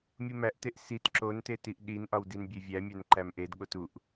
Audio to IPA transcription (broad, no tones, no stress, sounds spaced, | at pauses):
mʲ u m æ ʔ t e ʔ s i t ǁ o n t e t i ʔ ɗ i n ʔ ɒ w d i n bʲ e vʲ æ mʲ æ n ǃ æ m ʔ e d ɠ o t u ʔ